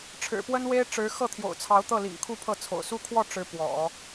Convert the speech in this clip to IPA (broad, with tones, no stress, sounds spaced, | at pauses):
ʈ͡ʂʰ ɻ̩˨˩ p w ə˥ n w e˥ ɪ̯ ʈ͡ʂ ɻ̩˧˥ x ɤ˥˩ t̪ʰ j o̰˨˩ ʊ̯ t͡sʰ ɑ˧˥ ʊ̯ t̪ ɤ˥˩ l ḭ˨˩ ŋ kʰ u˥˧ pʰ ɤ˥˩ t͡sʰ o̰˨˩ ʊ̯ s u˥ kʰ w ɔ˥˩ ʈ͡ʂ ɻ̩˧˥ p w ɔ̰˨˩˦